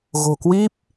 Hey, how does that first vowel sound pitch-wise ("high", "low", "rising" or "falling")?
low